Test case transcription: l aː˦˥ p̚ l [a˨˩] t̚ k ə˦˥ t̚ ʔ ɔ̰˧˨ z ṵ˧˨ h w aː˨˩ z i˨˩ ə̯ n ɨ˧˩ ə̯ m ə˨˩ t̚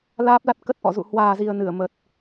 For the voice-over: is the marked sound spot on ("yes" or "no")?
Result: no